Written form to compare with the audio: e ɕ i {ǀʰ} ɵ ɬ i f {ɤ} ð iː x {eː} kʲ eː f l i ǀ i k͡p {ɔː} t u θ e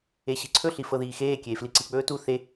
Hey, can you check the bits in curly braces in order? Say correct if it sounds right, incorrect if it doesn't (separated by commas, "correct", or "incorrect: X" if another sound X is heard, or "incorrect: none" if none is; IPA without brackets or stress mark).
correct, correct, correct, incorrect: ɵː